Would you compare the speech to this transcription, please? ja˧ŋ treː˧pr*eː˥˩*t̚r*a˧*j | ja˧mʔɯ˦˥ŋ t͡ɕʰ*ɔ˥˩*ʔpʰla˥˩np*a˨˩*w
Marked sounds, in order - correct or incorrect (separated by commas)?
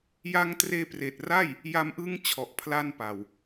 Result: incorrect, incorrect, incorrect, correct